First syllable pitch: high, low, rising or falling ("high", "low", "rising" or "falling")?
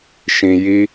low